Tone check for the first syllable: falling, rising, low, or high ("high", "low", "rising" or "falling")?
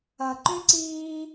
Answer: low